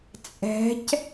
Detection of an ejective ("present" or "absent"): present